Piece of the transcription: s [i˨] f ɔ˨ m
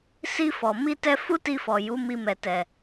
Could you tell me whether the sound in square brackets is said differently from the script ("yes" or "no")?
yes